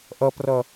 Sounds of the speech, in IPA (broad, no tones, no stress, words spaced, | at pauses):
ʔʌprʌ